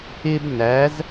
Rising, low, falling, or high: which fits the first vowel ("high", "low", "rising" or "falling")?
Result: high